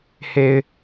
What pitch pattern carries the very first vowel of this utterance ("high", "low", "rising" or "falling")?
low